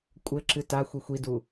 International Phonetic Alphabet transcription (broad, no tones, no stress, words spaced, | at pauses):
kʷʼɘǁɨ taxʷi xʷidu